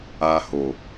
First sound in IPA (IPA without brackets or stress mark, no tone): a